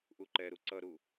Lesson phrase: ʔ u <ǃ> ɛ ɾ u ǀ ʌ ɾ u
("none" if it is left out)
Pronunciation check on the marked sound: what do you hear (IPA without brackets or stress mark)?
ǃ